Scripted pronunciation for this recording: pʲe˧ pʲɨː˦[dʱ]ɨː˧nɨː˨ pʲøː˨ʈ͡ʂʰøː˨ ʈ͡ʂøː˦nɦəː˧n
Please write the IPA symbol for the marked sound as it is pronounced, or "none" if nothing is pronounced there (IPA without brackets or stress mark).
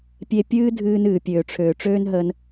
dʱ